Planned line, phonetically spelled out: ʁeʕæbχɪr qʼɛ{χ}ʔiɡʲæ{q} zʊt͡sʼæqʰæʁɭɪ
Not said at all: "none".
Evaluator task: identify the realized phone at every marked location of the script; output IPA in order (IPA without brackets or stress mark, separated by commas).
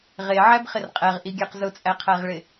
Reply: ʁ, q